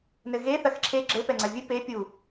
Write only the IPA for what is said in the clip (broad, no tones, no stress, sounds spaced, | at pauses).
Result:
n ɘ ɣ e θ ɐ x ǁʰ e ɡ͡ǁ ɘ p ɛ ŋ͡ǀ ɐ vʲ ɨ p e pʲ u